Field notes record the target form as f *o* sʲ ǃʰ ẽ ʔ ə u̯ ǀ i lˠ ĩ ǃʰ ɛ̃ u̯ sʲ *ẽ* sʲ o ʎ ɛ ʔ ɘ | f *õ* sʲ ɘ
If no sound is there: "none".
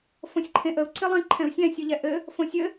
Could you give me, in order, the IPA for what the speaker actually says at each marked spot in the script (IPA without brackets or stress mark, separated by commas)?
õ, ɛ̃, õ